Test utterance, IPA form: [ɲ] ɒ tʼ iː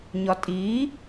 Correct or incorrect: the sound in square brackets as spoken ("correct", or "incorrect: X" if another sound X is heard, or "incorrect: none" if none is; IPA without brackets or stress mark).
correct